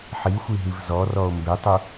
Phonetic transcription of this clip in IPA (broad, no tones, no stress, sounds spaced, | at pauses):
ħ i xʷ i ɦ i v z ɔ r ɔ o̯ m b e tˤ u